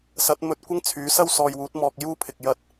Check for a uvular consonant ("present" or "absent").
absent